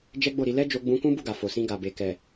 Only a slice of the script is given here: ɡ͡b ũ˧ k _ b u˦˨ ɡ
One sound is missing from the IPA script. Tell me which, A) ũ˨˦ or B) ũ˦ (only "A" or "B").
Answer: B